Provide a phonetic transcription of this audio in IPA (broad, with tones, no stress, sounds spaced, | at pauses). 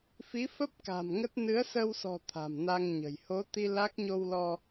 f i˨˦ f ə˦˥ p̚ k a̤˨˩ m ŋ ə˦˥ t̚ n ɨ˨˦ ə̯ s ə˧ w s ɔ̤˨˩ t̪ʰ a̤˨˩ m n a˧ ŋ ɲ ə̤˨˩ j h o˨˦ t̪ i˧ l a˦˥ k̚ ɲ o˧ w l ɔ˧